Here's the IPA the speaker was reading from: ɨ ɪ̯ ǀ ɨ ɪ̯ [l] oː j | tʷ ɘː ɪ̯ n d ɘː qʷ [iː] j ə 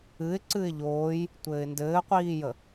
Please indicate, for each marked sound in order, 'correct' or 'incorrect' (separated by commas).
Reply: incorrect, correct